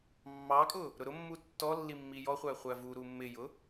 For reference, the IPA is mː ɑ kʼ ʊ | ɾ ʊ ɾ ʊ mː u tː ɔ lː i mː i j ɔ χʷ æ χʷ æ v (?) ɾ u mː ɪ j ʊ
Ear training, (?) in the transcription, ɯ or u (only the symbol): u